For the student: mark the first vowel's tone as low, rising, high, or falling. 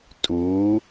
rising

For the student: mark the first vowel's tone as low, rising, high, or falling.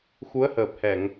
rising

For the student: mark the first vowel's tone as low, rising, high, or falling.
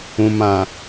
low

